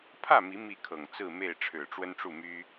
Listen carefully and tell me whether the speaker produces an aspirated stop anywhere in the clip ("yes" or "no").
yes